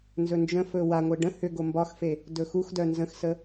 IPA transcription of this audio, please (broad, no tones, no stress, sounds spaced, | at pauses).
n z ɵ n d͡ʒ ə̃ f ɵ w a ŋʷ e ɖ ə̃ h ʏ ɡ o m b ɒ x f e | d ɵ x u x d œ n z ə̃ x s ə